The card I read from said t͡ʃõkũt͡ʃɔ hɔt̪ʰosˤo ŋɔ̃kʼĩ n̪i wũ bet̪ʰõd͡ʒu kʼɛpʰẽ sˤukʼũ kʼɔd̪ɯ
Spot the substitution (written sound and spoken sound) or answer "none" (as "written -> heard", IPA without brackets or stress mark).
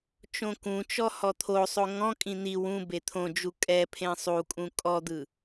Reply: none